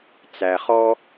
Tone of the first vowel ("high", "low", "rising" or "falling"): low